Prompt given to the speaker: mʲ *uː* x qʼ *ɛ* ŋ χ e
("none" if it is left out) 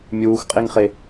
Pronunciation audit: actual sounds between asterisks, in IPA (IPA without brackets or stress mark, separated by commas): uː, e